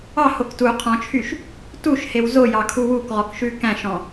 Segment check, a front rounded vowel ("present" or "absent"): present